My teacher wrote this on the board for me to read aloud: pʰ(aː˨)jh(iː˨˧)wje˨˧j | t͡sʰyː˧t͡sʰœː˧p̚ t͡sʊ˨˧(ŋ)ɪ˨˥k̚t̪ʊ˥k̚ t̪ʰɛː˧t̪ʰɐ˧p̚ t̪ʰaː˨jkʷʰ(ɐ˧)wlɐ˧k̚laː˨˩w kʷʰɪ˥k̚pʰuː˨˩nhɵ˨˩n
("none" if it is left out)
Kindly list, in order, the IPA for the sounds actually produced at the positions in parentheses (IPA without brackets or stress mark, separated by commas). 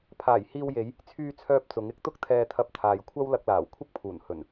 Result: aː˨˩, iː˧, ŋ, ɐ˥